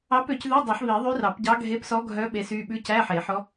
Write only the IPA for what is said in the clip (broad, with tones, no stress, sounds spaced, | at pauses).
ɑ˧˥ p ø˨˩˦ c ð ʉ˧˥˧ dˤ œ˨˩˦ ħ β i˨˩˦ ðˤ y˧˥ r ɑ˨˩˦ p ɟ ɑ˧˥ ɡʱ e˧˥ p s ɔ˧˥ ɡʱ œ˧˥ ɓ e˧˥ s y˧˥˧ ɓ ʉ˧˥ c æ˧˥˧ ħ e˨˩˦ ħ ɔ˧˥